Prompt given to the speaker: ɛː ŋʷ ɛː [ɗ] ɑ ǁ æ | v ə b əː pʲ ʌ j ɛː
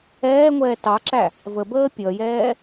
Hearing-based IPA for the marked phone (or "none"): t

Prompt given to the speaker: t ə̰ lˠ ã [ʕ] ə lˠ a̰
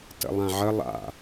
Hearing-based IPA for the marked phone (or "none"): ʕ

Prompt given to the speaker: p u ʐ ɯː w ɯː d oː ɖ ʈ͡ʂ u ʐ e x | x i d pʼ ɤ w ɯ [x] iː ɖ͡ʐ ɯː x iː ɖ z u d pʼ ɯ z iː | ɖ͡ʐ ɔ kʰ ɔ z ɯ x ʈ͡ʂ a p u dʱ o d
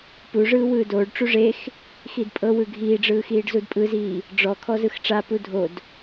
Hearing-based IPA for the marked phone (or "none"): ɡʱ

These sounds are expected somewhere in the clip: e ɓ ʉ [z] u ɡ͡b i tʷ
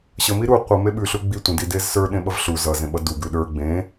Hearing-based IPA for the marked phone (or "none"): ɬ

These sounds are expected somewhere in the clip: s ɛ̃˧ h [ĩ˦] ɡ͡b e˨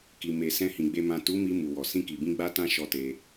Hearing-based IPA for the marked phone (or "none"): ĩ˨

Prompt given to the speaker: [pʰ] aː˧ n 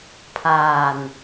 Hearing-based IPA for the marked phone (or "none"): pʰ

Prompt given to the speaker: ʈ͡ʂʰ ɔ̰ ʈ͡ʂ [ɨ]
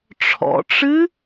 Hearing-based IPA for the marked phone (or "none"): ɨ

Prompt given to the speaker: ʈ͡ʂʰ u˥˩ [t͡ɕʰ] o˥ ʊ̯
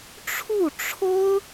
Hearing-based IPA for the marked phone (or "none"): ʈ͡ʂʰ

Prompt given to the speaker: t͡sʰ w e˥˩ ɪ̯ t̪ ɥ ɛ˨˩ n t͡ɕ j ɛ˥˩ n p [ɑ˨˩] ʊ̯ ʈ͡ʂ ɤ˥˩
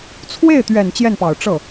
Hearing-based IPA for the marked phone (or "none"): ɑ˨˩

